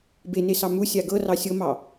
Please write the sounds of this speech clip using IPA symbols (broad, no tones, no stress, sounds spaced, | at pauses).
b e n e s ɑ m u sʲ a ɡ ɤ r ɑ sʲ ɤ m ɑ